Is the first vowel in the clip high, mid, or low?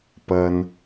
low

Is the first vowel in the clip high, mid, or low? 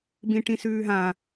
high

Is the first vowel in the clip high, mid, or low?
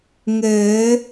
mid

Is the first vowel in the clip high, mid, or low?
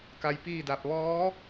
low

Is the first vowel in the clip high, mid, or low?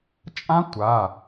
low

